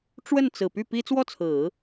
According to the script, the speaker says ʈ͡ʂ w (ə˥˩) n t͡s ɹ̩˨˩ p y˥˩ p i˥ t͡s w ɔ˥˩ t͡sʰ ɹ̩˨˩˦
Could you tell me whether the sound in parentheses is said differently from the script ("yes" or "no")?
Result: no